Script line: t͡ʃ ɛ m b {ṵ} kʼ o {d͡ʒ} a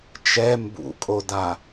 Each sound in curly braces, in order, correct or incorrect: correct, incorrect: d

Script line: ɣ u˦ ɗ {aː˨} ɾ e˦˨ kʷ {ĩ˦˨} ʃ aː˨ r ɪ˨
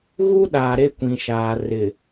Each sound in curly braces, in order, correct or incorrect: correct, incorrect: ĩ˨

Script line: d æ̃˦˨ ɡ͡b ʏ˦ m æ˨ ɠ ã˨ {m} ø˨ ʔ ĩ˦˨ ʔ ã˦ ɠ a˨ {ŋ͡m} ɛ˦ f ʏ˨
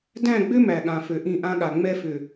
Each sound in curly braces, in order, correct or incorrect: incorrect: f, correct

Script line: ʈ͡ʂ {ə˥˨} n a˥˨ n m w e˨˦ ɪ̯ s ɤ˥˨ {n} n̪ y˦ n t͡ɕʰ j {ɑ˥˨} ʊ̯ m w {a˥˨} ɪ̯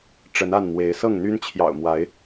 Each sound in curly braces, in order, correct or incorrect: incorrect: ə˨˦, incorrect: ŋ, incorrect: ɑ̰˨˩, incorrect: a˨˦

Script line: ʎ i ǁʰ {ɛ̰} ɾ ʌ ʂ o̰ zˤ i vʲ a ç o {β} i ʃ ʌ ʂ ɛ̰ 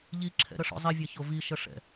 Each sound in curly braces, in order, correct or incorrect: correct, incorrect: v

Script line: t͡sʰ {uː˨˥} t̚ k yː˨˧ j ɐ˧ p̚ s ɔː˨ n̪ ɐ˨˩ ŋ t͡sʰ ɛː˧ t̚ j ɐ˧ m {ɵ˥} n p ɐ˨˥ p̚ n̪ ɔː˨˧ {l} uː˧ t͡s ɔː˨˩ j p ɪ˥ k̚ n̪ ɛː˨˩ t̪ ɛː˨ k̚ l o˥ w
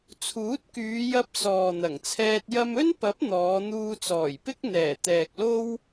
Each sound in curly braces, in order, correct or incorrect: correct, correct, incorrect: n̪

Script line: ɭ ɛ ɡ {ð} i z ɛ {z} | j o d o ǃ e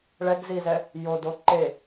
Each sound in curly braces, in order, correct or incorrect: incorrect: z, incorrect: none

